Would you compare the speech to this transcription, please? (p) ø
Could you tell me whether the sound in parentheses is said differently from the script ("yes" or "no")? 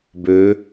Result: yes